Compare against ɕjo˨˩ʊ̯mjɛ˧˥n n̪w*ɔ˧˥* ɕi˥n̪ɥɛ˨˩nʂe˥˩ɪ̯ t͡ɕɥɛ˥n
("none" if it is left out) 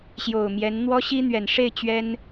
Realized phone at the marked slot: ɔ˥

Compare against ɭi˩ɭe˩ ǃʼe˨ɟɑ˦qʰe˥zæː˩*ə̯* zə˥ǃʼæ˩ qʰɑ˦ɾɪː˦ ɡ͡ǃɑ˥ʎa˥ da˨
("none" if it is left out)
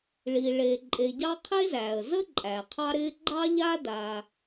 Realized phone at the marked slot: ə̯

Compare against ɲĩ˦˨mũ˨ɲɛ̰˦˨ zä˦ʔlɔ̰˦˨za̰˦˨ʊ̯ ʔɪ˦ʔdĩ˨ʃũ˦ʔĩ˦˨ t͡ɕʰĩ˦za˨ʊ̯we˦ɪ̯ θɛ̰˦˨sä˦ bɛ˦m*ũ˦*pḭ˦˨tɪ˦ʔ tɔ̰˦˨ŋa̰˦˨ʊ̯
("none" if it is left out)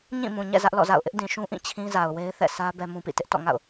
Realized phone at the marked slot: ũ˦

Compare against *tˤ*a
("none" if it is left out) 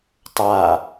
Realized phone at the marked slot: tˤ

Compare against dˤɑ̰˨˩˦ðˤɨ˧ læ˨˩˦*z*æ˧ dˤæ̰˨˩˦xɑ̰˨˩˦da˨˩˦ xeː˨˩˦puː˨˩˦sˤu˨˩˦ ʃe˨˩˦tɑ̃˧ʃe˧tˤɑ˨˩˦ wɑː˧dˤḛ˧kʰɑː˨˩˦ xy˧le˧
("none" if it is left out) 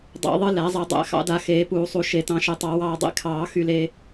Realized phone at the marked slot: zˤ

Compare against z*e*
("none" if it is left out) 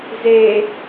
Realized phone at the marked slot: e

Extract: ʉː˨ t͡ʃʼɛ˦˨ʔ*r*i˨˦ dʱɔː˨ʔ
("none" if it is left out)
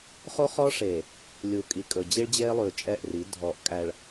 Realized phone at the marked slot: r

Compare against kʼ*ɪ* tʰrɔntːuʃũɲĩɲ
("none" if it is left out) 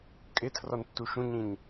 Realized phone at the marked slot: ɪ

